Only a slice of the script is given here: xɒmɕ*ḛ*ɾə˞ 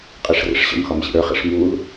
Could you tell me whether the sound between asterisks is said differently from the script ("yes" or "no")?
yes